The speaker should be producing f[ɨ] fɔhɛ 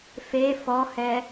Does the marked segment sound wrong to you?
yes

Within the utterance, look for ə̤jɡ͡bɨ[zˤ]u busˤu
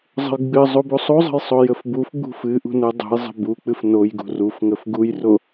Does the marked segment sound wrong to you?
no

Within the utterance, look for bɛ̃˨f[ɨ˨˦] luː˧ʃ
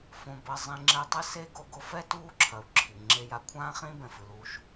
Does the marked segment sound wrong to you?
yes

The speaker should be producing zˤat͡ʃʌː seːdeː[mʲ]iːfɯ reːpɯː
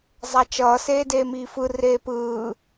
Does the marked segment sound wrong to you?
yes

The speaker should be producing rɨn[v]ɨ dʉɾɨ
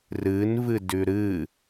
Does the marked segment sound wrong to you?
no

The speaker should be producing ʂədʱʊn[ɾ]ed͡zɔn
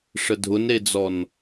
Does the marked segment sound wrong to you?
no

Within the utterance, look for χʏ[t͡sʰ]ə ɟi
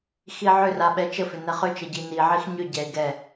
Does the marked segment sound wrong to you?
yes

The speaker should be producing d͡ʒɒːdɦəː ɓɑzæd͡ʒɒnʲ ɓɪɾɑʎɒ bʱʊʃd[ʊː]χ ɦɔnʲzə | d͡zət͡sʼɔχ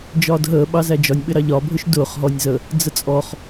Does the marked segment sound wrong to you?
no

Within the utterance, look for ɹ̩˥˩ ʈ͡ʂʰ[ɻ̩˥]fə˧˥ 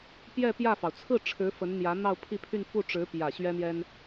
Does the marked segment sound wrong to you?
yes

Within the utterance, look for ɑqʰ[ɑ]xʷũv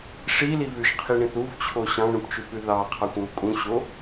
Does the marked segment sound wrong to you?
no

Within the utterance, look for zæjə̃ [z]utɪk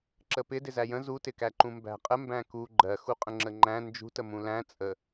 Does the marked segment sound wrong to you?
no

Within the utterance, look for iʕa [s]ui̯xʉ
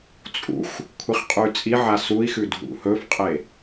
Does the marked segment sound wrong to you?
no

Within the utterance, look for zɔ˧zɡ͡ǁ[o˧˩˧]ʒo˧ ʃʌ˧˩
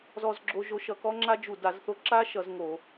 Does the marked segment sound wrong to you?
yes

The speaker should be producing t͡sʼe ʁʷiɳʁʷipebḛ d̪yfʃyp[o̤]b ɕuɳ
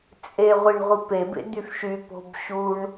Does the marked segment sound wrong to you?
no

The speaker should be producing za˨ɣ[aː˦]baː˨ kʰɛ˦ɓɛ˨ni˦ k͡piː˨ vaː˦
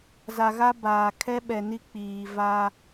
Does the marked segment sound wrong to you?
yes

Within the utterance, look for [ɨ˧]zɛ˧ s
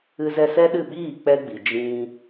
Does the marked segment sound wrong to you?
no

